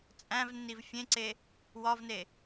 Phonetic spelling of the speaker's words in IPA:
t͡sʼ æ̃ v nː i v fʲ ẽ ǀ e | w ɒ v n e

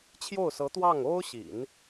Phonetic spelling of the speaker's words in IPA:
t͡ɕʰ j o˥˩ ʊ̯ s ɤ˧˥ t̪ w ɑ˥˩ ŋ o˥ ʊ̯ ɕ ḭ˨˩˦ n

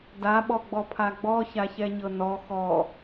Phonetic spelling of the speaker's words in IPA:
d a ɓ ɔ ɡ͡b ɔ pʰ a ɡ͡b ɔ ç a ç ɛ ɲ ɤ n ɔ x ɔ

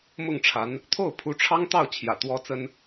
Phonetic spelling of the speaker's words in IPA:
m ʊ˥˩ ŋ ʈ͡ʂʰ a˧˥ n | t̪ʰ o˥˩ ʊ̯ pʰ u˧˥ ʈ͡ʂʰ ɑ˥ ŋ t̪ ɑ˥˩ ʊ̯ t͡ɕʰ j ä̰˨˩ t̪ w ɔ˥ t͡s ə˥ n

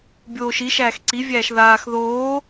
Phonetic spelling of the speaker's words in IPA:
bʲ oː ʃ i ʃ æː x ǀ i vʲ æː ʃ ð aː x ð oː

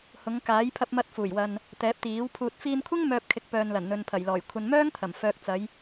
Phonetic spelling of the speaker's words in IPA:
h ʊ˨˧ ŋ k aː˨˥ j pʰ ɐ˧ p̚ m ɐ˧ t̚ f uː˨˩ j w ɐ˨ n | t̪ ɛː˨˥ p̚ t̪ iː˨˥ w pʰ uː˧ t̚ f iː˧ n kʷʰ ɪ˥ ŋ m œː˧ p̚ kʰ ɪ˨˥ k̚ p œː˨ n l ɐ˨˩ n n̪ ɵ˨ n pʰ ɐ˨˩ j l ɔː˨˩ j kʷʰ ɐ˨ n m œː˥ ŋ t̪ʰ ɐ˨˩ m f œː˨ k̚ t͡s ɐ˨˧ j

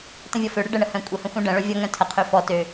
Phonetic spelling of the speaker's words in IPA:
t ə̃ vʲ ɔ f ø ɽ ə ɖ ə ɳ ə h œ̃ kʷʼ ə h ə̃ xʷ œ̃ ɖ ə̃ ɭ œ vʲ ɔ ŋ œ̃ tʰ ə qʰ ø f ɔ t ø

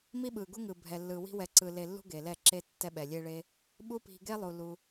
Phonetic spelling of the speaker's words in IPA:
m i˦ ɓ ɯ˨ ɡ u˦ ŋ ɯ˧ bʱ ɛ˨ lː ɯ˨ w i̤˦ w ɛ˧ ǀ ɯ˧ l e˧ lː ṳ˦ ɡ e˨ l ɛ˦˨ ǁ e˦ tː ɛ˦ ɓ ɛ˨ lʲ e˦ ɭ e˦ | ɓ u˦ p i̤˧ ɡ e˦ lˠ u˨ l u˧

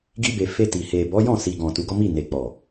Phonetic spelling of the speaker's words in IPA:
ɡ i˧ b e˨ f e˧ t i˨ h e˨ b ɔ˨˦ j ɔ̃˦˨ s i˨ ɡ ɔ̃˨ t u˨˦ ɡ ɔ˦ m i˦˨ n e˨ k͡p ɔ˨

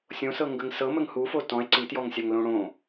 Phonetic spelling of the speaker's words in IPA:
sʲ õ s ɤ ŋ ɡ ə ŋ s ɤ m ə ŋ h u f o t ɔ̃ e̯ ǀ i t j ɔ ŋ sʲ a ŋ l õ ɽ õ

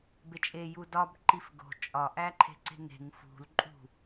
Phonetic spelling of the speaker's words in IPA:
b e t͡ʃʼ e j u d ɒ b ǃ i f ɡ o̤ t͡ʃʼ ɒ ʔ æ ǃʰ e̤ ǀ e̤ ŋ e̤ ŋ f ṳ l ǃʼ ṳ

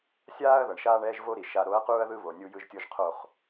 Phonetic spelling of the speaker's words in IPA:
sʲ aː˦ ɐ̯ ð ʌ˨ ɳ ʃ aː˦ ɳ ɛː˦ ʒ v o˦ ɾ i˨ ʃ a˨ ɾ o˨˦ ɐ̯ q uː˦ ɐ̯ ð ɯ˦ β o˨ nʲ u˦ j ɯ˦ ʒ tʲ o˦ ʒ qʰ o˦˨ χ

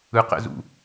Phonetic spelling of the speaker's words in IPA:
ɯ q ɛ̰ z ṵ

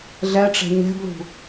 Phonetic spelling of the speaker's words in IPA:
ɮ ɛ ʈ͡ʂ ɛ̤ ɲ ɛ̤ b l ṳ

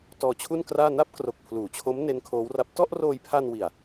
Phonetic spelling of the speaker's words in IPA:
t ɔː˧ t͡ɕʰ u˥˩ n k r aː˥˩ n a˥˩ p̚ k r o˨˩ k̚ pʰ l uː˩˦ t͡ɕʰ o˦˥ m n e˦˥ n kʰ oː˦˥ w r a˦˥ p̚ t ɔ˥˩ ʔ r oː˧ j pʰ a˧ n w i˨˩ a̯

